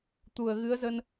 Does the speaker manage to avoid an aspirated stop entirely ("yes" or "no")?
yes